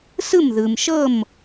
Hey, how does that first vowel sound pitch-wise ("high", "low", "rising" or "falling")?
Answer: falling